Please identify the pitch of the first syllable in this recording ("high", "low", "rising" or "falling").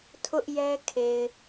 high